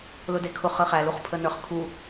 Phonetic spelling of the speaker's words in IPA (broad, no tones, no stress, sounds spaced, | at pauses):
l ʊ d e kʰ ʊ χ ə χ æ l u χ pʰ ə n ə˞ χ kʰ u